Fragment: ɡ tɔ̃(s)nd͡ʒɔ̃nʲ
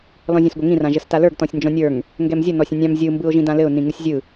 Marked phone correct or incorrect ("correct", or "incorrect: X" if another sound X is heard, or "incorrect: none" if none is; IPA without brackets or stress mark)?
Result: incorrect: sʲ